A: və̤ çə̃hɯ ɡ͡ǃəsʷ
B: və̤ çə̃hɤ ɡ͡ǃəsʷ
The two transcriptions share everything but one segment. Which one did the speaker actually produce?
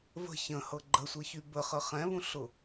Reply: B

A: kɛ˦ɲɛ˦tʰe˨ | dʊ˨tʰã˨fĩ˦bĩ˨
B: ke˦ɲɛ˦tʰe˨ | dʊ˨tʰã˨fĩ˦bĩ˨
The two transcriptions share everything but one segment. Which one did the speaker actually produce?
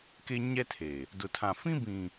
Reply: B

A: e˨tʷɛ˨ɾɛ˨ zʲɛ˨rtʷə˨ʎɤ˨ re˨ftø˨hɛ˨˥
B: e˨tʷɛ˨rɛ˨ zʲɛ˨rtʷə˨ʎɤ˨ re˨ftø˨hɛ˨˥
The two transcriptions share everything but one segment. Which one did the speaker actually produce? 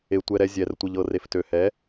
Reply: A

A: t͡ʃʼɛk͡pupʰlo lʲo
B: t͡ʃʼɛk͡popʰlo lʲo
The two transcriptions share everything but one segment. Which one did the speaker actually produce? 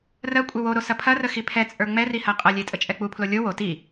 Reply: A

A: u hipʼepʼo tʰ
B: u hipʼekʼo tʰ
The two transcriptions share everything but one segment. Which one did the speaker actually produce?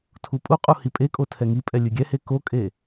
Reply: B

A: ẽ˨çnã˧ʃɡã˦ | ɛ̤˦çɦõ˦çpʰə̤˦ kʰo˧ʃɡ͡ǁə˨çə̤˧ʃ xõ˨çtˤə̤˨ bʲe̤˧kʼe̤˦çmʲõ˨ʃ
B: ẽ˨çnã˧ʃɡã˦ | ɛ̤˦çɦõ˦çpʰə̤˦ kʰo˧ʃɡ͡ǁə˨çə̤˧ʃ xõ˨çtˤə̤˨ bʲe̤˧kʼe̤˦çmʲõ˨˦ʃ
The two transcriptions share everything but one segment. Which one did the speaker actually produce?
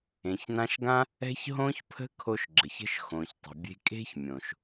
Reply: A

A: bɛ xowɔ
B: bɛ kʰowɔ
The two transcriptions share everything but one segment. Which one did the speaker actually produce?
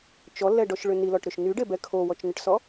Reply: B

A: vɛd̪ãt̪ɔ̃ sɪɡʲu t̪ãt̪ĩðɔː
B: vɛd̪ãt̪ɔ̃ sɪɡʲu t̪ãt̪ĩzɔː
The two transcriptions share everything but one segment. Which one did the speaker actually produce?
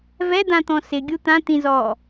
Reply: B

